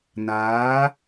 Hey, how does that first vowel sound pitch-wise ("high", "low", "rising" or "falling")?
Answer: rising